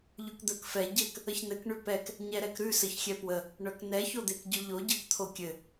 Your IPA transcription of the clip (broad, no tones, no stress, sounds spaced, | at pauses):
ʎ ʉ k d̪ ə˞ k f ɛ ɟ ɘ k | ə ç n ɘ k ɳ ʉ p ɛ k | ɲ ɛ ɾ ɛ k ɾ ʉ s ɘ ç xʲ ɛ p w ə | ɳ œ k n ɛ ç o d̪ e k ɟ ʉ ʎ o ɟ ə˞ k t̪ʰ o kʲ ɘ